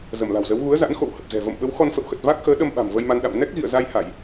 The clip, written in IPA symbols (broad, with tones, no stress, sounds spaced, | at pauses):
z ə˧˩ m l a̤˨˩ w z ə˨˦ w ɣ u˨˦ ə̯ z a̰˧˥ n x o̰˧˨ w h ə˨˩ p̚ z ɛ̤˨˩ v ə̰˧˨ m ɓ ə˨˦ w x ɔ˧ n f ə̰˧˨ w x ə˨˩ t̚ v a˦˥ k̚ x əː˨˦ ɗ ə˧ m ɓ a̤˨˩ m v ə˧ j m a˧ n ɗ a̰˧˨ m n ɛ˦˥ k̚ ɣ ḭ˧˨ ə̯ z a˧ j h a˧˩˨ j